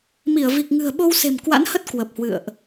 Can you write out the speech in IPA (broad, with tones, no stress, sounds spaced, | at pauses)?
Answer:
m i˧˩ ə̯ v i˨˩ k̚ ŋ ɨ̤˨˩ ə̯ ɓ o˧ w s e̤˨˩ m k w a̰˧˥ n h ə˦˥ t̚ k w ə˨˩ p̚ h w ɨ̰˧˨ ə̯ ʔ